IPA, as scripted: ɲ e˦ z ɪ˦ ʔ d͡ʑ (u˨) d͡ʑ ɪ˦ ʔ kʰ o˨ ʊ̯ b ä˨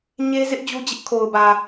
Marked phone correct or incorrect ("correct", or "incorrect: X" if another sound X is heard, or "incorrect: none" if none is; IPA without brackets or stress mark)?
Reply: incorrect: u˦